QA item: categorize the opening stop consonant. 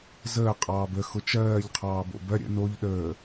ejective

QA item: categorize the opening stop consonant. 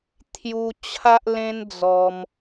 aspirated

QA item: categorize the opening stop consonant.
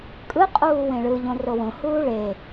ejective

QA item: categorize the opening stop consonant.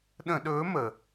implosive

